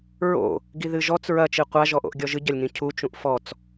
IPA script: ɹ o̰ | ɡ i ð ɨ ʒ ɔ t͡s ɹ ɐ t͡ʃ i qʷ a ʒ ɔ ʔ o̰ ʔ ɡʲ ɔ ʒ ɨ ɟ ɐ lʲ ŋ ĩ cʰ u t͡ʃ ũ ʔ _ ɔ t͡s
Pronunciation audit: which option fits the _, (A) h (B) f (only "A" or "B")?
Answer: B